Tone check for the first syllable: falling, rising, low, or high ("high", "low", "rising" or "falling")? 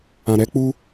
low